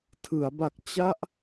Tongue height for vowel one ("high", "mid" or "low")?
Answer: high